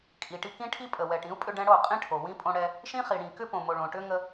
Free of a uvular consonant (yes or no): no